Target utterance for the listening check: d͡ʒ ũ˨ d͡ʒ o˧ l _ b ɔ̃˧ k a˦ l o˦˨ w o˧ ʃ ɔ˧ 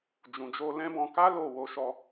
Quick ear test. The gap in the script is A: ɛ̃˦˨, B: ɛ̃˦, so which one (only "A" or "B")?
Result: B